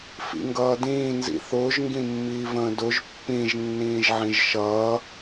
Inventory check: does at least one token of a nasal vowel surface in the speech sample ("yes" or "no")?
yes